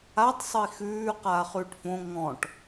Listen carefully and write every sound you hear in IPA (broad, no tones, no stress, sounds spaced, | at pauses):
a tˤ sˤ ə i̯ x ʉː q aː χ ʉː ʈ f õ ŋ ɔ̃ ʈ